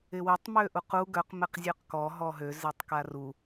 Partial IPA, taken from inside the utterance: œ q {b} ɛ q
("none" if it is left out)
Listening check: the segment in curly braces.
m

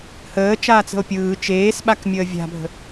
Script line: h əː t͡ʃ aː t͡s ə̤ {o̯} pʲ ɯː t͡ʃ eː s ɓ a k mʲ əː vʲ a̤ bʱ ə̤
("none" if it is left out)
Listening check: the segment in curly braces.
o̯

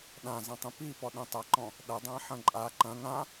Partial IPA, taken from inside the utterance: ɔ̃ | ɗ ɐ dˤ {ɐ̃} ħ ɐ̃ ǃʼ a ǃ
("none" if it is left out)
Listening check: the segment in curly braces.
ã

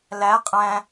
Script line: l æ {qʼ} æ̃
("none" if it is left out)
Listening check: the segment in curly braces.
qʼ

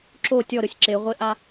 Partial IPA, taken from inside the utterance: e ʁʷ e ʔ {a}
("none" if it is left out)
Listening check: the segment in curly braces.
a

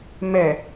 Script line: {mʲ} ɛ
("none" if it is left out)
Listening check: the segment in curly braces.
m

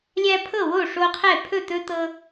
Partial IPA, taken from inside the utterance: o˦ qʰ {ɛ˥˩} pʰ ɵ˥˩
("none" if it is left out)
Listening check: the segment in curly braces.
ɛ˥˩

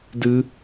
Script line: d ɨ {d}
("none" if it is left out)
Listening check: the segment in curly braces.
none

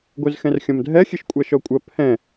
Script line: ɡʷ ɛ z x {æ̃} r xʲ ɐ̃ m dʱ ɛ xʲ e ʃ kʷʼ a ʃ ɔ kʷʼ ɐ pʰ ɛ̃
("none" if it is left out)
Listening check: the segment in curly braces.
ɛ̃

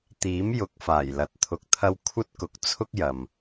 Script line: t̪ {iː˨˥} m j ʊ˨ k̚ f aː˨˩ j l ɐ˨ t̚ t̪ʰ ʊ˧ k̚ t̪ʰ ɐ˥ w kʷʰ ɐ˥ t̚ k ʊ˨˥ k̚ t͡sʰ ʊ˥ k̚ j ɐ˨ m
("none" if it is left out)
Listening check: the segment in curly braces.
iː˨˥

